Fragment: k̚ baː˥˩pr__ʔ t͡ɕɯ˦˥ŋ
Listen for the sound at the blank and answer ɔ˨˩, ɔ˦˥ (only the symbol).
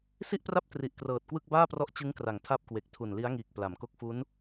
ɔ˦˥